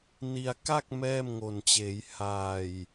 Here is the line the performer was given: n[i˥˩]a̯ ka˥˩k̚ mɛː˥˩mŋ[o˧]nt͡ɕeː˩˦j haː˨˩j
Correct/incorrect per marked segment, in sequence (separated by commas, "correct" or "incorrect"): incorrect, incorrect